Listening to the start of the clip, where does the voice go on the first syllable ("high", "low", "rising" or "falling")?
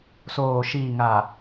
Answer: low